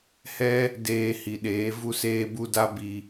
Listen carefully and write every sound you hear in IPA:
h ɛ˦ | d eː˧ h i˨ ɗ eː˨˦ v u˦ s eː˦ b u˦ d a˦ b i˧

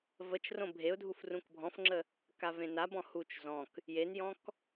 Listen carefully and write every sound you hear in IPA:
v ə t͡ʃ r õ bʱ e ʊ̯ dʱ u f r ũ k bʱ ɔ̃ f ŋ͡ǁ ə | k a v ẽ n a b ɔ̃ h u t͡ʃ z ɔ̃ k | j e n j ɔ̃ k

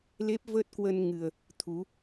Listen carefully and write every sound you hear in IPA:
l e˦˥ p̚ v əː˦˥ t̚ k w ə˧ n ŋ ɨ˨˩ ə̯ | t̪ʰ u˨˦

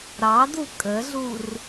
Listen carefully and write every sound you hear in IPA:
ɾ ɑ d u kʼ ə ɮ u r

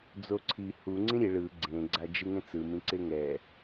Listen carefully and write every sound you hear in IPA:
d͡z o ǀʰ i h u ŋ͡ǀ ĩ ɾʲ e ɭ ɯ ɡ͡ǀ ẽ ɡ͡ǀ a d͡ʒ ɯ ŋ ẽ t͡s ɯ m ĩ ǀ e ŋ ɛ

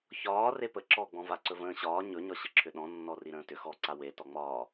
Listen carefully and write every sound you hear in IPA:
ç ɒː r e p ə ǁ ɔ ɡ͡b ɔ̃ v a ǀ ɵ v ə̃ː ɕ ɒː ɲ ɵ ɲ ɒ ɕ ə ǁʰ ʏ ɗ ɔ̃ nː ɔ r i ɾ ə̃ː t ʏ x ɔ ǀ a w e t ɔ ŋ͡m ɒː

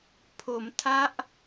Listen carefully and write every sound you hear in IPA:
pʰ o˩˦ m tʰ a˦˥ ʔ

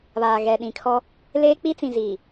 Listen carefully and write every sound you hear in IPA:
β aː˨ ɣ ɛ˨ ɗ ĩ˨ kʰ ɔ˦ | l eː˦ k͡p i˦ t͡s ĩ˨ z iː˨

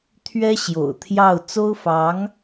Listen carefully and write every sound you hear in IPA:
t̪ʰ ɥ ɛ˥ ɕ j o̰˨˩ ʊ̯ t̪ʰ j ɑ˥˩ ʊ̯ t͡s o˥ ʊ̯ f ɑ˧˥ ŋ

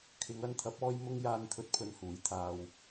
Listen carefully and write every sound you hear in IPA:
kʰ ɪ˨˧ ŋ ɐ˧ n t̪ʰ ɐ˨˥ p̚ ɔː˧ j m ʊ˧ ŋ j aː˧ n t̪ʰ ɵ˨˥ t̚ pʰ ɵ˨˧ n h uː˨˥ j t̪ʰ aː˨ w

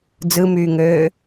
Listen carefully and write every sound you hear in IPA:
d͡z ɯ m yː ŋ øː

